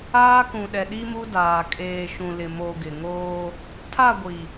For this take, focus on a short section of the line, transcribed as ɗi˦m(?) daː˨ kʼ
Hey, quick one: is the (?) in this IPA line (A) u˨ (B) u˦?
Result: B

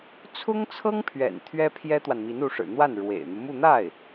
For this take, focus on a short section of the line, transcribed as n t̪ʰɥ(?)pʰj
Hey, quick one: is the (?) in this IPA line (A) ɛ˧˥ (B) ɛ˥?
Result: B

